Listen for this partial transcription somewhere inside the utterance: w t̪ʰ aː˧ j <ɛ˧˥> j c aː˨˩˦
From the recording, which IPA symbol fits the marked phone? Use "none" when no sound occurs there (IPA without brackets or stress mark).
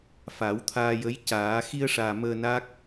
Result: ə˧˥